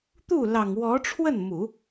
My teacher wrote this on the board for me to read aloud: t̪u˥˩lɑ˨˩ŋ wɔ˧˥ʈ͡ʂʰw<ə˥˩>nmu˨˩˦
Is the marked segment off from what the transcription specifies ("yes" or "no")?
no